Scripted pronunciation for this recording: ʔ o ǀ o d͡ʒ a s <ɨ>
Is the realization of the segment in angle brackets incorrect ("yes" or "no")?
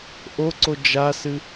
no